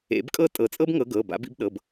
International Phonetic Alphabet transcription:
ḛ˨˩˦ b kʼ ɤ˥˩ tʼ ɤ˨˩˦ t͡sʼ ɤ˥ b ŋ ɤ˨˦ ɡ ɤː˩˧˩ b a̰˨˦ b ḭ˨˦ b ɗ ɤ˩˧˩ b

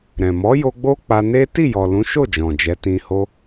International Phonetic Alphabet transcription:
ɾ ɛ̃˨ m ɔ˨˦ j o˧ ɡ͡b o˦ k͡p a˧ n e˦ t i˦˨ j ɔ˨ l ũ˨˦ ʃ o˦˨ d͡ʒ ɔ̃˨ d͡ʒ ɛ˨˦ t ĩ˧ h o˦

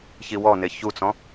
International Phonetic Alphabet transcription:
ç i w ɔ n e ç u t͡s ɔ̃

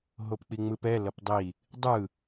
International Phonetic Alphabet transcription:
ɦ o p k͡p i ŋ͡m ɯ p ɛ l ʌ p dˤ i | dˤ ɯ

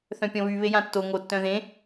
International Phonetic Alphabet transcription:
θ œ̃ pʲ ɔ̃ β y β e j ã tː o ŋ o tː œ̃ ð ẽ

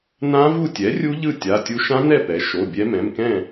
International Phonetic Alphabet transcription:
n ã˦˥ v u˥˨ tʲ ɛ˩˥ rʲ u˦˥ ʎ ɯ˥˨ tʲ a˩˧˩ tʲ u˦˥ ʃ ã˦˥ n ɛ˥˨ p ɛ˩˥ ʃ o˩˧˩ bʲ ɛ˦˥ m ɛ̃˩˧˩ m k ɛ̃˥˨

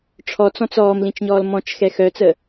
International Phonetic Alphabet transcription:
ʈ͡ʂʰ ɔ t͡s ɔ̃ t͡s ɔː m l ĩ t͡ʃ ɲ ɔː l m ɔ̃ t͡ʃ x ɛ x œ t͡s ə

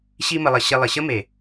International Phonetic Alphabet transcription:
ɕ i˦ m ə˧ lˠ ə˧ ɕ ɪ˧ lˠ ɪ˨ ɕ ə˦ m e˨

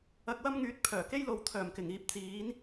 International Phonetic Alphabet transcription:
ɐ˧ k̚ w ɐ˥ m ŋ yː˨˥ t̚ pʰ œː˨˩ k e˥ j l o˨˧ w t̪ʰ œː˨˩ m k ɪ˨˩ ŋ iː˨˥ p̚ t͡s iː˨˥ n

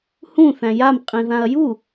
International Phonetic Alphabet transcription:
h ũ θ æ̃ j a m qʼ ĩ ð ã ɐ̯ j u

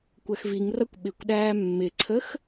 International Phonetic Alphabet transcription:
kʷ ɜ x v i ŋ r ʌ kʷ ɓ ɪ kʷ ɗ æː mː ɪ ǀʰ ə x

